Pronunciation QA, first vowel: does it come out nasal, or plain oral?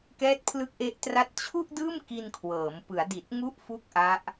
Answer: oral